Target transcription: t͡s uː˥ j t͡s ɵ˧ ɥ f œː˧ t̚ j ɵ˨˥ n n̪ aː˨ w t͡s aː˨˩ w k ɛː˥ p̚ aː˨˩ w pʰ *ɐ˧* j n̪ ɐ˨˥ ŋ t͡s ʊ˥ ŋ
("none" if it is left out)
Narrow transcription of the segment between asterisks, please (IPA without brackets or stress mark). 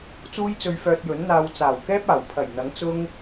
ɐ˨˩